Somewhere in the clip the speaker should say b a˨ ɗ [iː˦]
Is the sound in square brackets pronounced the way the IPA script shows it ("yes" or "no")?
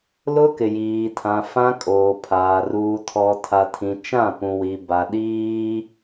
yes